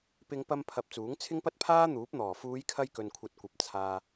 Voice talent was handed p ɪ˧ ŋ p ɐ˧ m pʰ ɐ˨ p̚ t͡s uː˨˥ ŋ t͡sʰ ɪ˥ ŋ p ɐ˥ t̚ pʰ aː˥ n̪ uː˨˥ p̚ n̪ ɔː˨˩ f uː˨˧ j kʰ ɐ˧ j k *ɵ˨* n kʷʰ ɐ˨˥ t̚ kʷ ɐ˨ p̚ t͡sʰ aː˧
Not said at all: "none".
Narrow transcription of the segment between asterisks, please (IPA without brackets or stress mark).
ɵ˨